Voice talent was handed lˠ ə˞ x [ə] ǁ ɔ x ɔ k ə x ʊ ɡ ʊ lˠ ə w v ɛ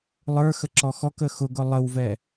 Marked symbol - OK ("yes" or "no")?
yes